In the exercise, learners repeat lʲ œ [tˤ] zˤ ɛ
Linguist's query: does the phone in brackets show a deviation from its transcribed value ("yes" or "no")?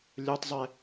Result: no